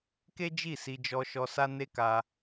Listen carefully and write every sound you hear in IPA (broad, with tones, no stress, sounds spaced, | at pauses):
k e˦ d͡ʒ i˦˨ s i˧ d͡ʒ ɔ˧ ʃ ɔ˧ s a˦ n e˦ k a˧